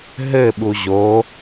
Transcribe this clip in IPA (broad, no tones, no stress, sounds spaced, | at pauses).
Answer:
ɦ ɘ ɓ u ʑ o